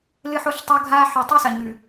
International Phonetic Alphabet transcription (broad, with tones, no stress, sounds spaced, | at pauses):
l ɨ˦ ħ o˦ ɬ tˤ o˦ ɡʱ aː˦ ħ ʉ˨ tˤ i˦ s ɐ˨ ɲ ʉ˨